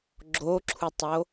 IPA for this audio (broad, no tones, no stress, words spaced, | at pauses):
ɡ͡ǁoǁʰutˤo